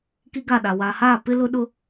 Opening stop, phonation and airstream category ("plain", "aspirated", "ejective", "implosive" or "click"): plain